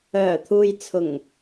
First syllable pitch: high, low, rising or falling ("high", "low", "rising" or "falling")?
low